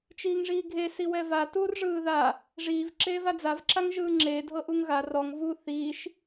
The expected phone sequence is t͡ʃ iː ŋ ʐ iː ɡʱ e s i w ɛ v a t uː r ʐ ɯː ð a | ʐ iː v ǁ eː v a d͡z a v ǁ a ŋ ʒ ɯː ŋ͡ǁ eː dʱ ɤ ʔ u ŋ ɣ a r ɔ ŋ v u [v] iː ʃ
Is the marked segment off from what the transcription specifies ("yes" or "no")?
yes